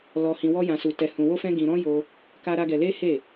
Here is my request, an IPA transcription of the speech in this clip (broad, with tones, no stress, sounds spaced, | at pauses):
l ɔ˧ h ĩ˧ w ɔ˦ j ã˧ s u˧ t ɛ˧ h ũ˧ w o˦ f ɛ̃˦ ɡ ĩ˧ ɾ ɔ̃˦ j o˧ | k a˦ ɾ a˦ ɡ ɛ˧ l e˦ h e˦˨